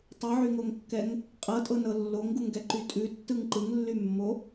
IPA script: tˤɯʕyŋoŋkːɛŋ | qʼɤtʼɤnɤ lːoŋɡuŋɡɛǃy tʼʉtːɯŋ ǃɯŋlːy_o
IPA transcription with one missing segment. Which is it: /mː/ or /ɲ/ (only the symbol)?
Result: mː